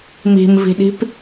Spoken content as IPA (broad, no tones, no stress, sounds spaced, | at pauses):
m i̤ m v i̤ ɗ i̤ p